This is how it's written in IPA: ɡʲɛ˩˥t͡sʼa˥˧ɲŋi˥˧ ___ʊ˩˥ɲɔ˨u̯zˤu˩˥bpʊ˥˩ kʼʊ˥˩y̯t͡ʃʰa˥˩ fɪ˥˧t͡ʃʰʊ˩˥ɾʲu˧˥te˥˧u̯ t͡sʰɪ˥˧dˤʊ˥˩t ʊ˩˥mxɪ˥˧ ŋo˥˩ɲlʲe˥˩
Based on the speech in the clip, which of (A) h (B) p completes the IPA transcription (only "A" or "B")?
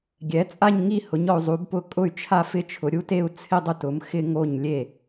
A